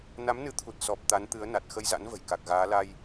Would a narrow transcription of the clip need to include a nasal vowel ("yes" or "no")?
no